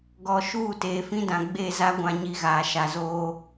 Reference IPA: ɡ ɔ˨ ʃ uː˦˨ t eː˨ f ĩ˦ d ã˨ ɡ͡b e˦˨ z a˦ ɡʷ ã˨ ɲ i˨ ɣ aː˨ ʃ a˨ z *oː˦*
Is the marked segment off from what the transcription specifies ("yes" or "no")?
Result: no